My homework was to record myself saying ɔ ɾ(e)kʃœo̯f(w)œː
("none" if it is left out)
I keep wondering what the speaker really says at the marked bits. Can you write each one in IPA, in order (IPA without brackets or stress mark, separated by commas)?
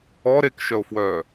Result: e, w